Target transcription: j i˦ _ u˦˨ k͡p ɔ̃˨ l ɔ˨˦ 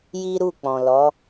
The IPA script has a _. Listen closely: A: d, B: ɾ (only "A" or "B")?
B